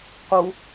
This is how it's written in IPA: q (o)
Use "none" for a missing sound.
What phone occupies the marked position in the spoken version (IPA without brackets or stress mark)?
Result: u